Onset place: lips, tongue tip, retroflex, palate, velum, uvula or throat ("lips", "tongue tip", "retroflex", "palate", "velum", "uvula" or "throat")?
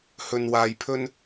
throat